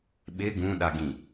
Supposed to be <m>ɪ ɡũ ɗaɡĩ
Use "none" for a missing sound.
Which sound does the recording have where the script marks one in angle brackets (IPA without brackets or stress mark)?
ɓ